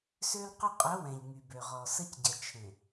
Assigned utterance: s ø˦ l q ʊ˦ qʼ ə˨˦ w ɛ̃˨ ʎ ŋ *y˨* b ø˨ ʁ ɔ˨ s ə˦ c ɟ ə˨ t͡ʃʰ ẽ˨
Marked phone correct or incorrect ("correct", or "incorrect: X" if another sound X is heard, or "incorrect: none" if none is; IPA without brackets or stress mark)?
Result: correct